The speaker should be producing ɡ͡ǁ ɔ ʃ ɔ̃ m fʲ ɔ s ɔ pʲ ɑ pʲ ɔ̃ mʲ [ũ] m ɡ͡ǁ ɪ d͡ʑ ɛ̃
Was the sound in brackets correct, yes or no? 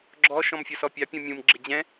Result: yes